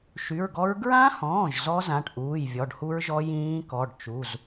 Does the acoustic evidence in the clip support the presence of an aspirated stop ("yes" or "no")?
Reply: no